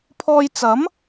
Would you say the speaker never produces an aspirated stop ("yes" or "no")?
no